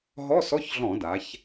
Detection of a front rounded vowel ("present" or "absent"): absent